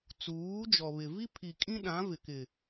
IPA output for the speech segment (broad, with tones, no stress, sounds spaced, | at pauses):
t͡s uː˨˦ d͡ʒ ɔ˨ β ɪ˨ v i˦ pʰ i˨ kʼ ĩ˦ ɗ ã˨˦ v ɪ˨ k ɪ˨